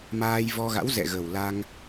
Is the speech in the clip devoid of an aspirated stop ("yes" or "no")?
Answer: yes